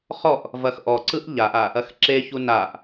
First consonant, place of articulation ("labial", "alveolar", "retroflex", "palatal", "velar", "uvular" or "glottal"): uvular